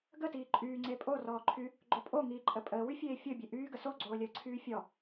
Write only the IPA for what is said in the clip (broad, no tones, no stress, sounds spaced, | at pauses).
ɡ ə t iː ǃʼ yː ŋ͡ǀ e pʼ o r ɔː ǃʰ y | ɡ͡ǃ o pʼ o ŋ iː ǃʼ ə pʼ əː w y fʲ eː fʲ o bʲ e ʔ yː ɡ ə s o ɡ͡ǀ oː lʲ əː ǀʰ yː fʲ ɔ